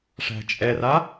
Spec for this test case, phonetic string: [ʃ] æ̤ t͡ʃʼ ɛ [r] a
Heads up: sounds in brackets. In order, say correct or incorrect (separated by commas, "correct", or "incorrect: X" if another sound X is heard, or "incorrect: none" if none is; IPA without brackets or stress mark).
incorrect: ʂ, correct